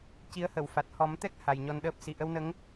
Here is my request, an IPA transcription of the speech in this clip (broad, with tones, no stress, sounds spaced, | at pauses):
c i˧˥ ə̯ h ə˨˩˨ w f a˨˩ t̚ h ɔ˨˩˦ m t̪ ɛ˦˥ k̚ h a˨˩ j ɲ ɔ˧ n ɗ əː˦˥ p̚ s i˨˩˨ ʔ ə˧ w n ə˧˥ ŋ